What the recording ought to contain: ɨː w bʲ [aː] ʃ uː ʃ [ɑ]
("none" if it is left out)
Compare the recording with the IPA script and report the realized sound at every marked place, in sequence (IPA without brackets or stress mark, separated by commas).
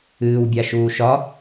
a, ɒ